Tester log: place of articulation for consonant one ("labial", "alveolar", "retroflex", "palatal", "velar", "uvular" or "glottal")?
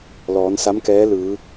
alveolar